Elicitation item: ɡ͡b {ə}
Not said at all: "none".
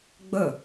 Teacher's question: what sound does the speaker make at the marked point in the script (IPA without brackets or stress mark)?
ə